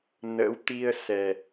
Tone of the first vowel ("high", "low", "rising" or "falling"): rising